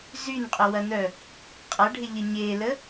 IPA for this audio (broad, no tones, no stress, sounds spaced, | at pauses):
z y n qʼ ʊ w ɐ n œ | qʼ ɐ ɖʱ ɪ ʎ ə ɲ e l ə